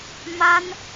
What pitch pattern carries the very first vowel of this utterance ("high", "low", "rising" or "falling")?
high